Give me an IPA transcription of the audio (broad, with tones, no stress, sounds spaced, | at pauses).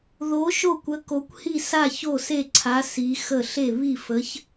ð o˨˥ ʃ o˥˩ kʷ ə˨˥ k o˨˥ kʷ h i˥˩ s a˥˩ ç o˥˩ s e˥˩ ǀʰ a˨˥ s i˨˥ x ə˥˩ ɬ e˥˩ β i˥˩ f ə˨˥ ç